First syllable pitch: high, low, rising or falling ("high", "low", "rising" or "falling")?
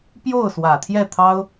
falling